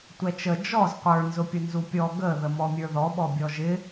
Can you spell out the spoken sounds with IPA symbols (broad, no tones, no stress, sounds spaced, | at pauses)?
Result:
tʷ ɛ t͡ʃ ə d͡ʒ ɔ z qʷ ə˞ n z ʊ pʲ ʊ n z u pʲ ɔ ɡ ə ð ə m ɔ mʲ ə˞ ð ɔ ɓ ɔ bʲ ɔ ʒ ɪ